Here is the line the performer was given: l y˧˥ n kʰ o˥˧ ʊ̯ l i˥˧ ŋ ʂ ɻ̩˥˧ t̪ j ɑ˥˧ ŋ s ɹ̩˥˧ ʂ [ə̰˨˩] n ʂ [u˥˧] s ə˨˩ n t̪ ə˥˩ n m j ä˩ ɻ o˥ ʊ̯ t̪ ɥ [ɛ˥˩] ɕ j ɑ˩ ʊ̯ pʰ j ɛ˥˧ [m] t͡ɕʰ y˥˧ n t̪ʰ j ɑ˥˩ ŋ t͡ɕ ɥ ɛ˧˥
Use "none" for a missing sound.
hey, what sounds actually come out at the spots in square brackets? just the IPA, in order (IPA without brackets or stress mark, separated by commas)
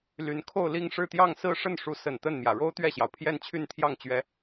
ə˥˩, u˧˥, ɛ˥˩, n